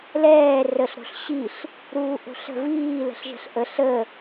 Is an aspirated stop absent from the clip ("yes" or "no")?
yes